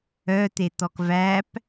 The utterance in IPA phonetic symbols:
œt̪et̪ɔk væp

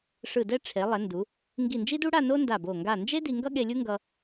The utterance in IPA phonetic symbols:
ʂɯ˧˩dɛ˥˧ ʈ͡ʂʰe˩˧lˠɛ˩˧ndu˩˧ | ŋɡi˧˩nd͡ʒi˥du˥ɽa˥˧ no˥nda˧˩bo˧˩ ŋɡa˧˩nd͡ʒe˥ di˧ŋɡʌ˥ɠe˧lʲu˥ ŋɡʌ˧

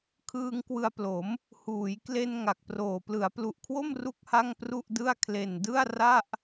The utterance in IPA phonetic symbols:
kʰɯː˧ŋkwɯ˧a̯plo˩˦m | huː˩˦jkle˧n ŋa˨˩k̚proː˨˩ plɯ˩˦a̯plu˨˩ʔkʰwo˥˩m ru˥˩k̚ha˥˩ŋpru˥˩ʔdɯ˥˩a̯ kʰle˨˩ndɯ˥˩a̯ ra˥˩ʔ

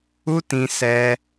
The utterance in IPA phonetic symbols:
u˦ tĩ˧sɛ˧

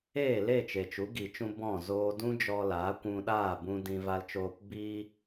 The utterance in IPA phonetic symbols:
eː˦˨le˦˨ t͡ʃe˨t͡ʃu˨˦ɡi˨t͡ʃũ˧ bɔ̃˦˨ zoː˧dũ˦d͡ʒɔ˧ laː˨˦kʷũ˧ɗaː˦˨ bũ˧dĩ˧ va˧lt͡ʃoː˧p biː˧

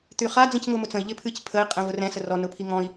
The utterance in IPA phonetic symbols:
t̪yχa d͡zĩcŋʊːmʊt͡sə̃i̯ ʎɪpʰɨc pʰəi̯ qʼĩvʊrɛ̃ sərɔ nʊpʰiŋɔ̃i̯

